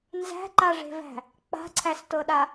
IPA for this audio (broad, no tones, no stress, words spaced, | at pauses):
nzæ̤ǃaʐe̤væ̤ | k͡pa̤ǀʰæstɤɗa